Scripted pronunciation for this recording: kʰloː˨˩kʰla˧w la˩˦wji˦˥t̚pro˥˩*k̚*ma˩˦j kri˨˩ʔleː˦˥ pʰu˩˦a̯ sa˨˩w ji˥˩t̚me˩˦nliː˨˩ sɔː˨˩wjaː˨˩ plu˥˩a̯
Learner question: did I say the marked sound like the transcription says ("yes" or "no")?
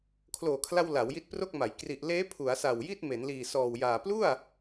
yes